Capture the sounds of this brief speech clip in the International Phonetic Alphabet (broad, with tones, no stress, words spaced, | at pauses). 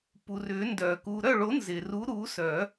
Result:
pu˩rʏ˨˩˦ndœ˩ ku˩ɾœ˥˩ɭo˨˩˦ nzɪ˩ru˨˦ ɾu˨˦sœ˨˩˦